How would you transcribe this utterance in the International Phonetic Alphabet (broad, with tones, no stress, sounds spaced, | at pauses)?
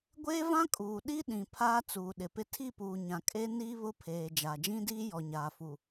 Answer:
ɡʷ eː˦ v ã˦ kʼ uː˨ ɗ i˦ ɗ ĩ˨ pʰ aː˦ t͡s uː˨ ɗ ɪ˨ p ɪ˦ tʰ i˦˨ p uː˨ ɲ ã˨ kʼ e˦ n iː˦ β ʊ˦ pʰ eː˨ d͡ʒ aː˨ d͡ʒ ĩ˦ d iː˦ j ɔ˨ ɲ aː˨ f u˨